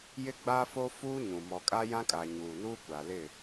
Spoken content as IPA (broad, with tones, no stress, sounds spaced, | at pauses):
j ɪ˦ ɡ͡b aː˦ f oː˦ f uː˦ ɲ ũ˨ m ɔ˨ kʼ a˦ j ã˦ kʼ a˨ ɲ uː˨ n uː˦ kʷ a˨ l ɪ˦˨